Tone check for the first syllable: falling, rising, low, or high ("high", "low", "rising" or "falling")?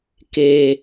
low